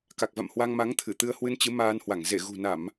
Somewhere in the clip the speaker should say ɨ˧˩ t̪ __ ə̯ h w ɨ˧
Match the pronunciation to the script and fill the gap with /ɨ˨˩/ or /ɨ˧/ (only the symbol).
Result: ɨ˧